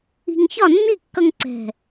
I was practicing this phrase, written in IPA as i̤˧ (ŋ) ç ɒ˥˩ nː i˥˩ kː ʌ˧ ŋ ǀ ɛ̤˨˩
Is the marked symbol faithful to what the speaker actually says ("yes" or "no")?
yes